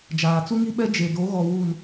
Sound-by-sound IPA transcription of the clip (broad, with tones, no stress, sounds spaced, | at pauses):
d͡ʒ aː˨ t͡s u˦ ŋ i˦ ɓ ɛ˦ d͡ʒ e˨ d o˨˦ ɣ ɔ˨ w uː˨ n